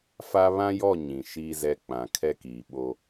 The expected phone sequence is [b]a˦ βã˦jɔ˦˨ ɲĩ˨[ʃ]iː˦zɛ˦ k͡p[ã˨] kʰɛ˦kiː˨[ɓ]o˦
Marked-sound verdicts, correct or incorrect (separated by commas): incorrect, correct, correct, correct